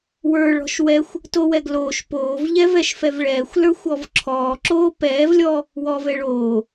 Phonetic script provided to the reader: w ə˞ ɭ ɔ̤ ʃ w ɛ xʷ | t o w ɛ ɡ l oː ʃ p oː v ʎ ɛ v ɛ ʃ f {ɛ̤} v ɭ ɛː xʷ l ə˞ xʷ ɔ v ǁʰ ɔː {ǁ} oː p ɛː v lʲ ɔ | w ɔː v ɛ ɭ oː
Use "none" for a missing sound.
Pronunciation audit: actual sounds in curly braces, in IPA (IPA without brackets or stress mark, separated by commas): ɛ, ǁ